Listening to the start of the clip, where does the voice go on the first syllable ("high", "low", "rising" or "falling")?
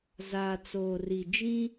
low